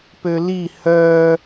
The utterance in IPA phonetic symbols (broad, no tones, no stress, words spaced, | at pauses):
pøli hœː